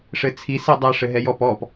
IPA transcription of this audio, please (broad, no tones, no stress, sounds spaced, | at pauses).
ʂ ɘ t͡sʰ i s i dˤ a ʂ ɘ ɦ ɛ j ɔ p ɔ p